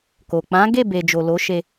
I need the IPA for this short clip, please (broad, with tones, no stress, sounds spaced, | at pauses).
k o˨ k͡p ã˨˦ ɡ e˦˨ b e˨ d͡ʒ o˨ l o˨˦ ʃ e˧